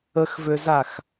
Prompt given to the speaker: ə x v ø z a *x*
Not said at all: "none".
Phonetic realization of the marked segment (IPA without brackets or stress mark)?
x